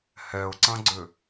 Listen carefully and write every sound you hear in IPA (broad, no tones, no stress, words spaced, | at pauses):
hɛʊ̯ǀɐ̃ɡ͡ǀʏ